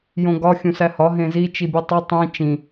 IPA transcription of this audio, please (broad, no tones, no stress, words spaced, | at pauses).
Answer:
jõɡɒ xʲũsæhɒ ɦẽzi t͡ʃibʲutˤo tˤĩ t͡ʃĩ